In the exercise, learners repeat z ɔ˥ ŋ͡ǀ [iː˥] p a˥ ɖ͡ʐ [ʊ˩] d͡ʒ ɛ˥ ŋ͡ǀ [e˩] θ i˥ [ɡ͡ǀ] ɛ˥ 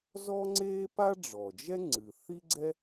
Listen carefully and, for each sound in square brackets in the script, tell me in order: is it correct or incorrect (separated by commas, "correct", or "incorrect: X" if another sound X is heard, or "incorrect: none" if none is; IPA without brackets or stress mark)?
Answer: incorrect: eː˥, incorrect: ɔ˩, incorrect: ɨ˩, correct